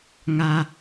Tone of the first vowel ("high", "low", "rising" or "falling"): low